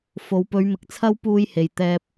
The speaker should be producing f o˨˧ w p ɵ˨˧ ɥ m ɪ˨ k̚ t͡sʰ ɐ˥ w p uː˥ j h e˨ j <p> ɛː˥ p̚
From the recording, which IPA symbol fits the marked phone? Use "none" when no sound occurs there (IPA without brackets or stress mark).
t̪